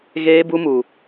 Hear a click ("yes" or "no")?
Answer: no